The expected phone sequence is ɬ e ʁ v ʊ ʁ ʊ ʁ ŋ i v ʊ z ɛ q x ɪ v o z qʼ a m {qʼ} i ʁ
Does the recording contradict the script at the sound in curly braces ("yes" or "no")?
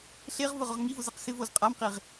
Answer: yes